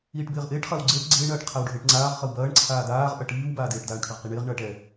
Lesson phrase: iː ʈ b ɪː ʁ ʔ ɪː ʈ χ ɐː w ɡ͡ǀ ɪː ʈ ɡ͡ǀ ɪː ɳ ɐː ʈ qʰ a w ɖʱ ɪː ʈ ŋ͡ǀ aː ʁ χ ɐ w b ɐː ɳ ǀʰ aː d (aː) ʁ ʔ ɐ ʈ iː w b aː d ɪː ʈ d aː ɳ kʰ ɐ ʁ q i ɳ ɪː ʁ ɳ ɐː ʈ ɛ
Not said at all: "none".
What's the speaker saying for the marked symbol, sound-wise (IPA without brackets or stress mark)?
aː